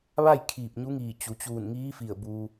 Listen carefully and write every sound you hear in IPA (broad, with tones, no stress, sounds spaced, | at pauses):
ʋ a˥˨ j kʰ iː˧˩ p̚ ɲ u˧˥ ŋ iː˧˩ t͡ɕ u˩ t͡ɕ uː˧˩ n ŋ iː˧˥ f i˧˩ ə̯ b u˧